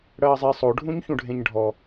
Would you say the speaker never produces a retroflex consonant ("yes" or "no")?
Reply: no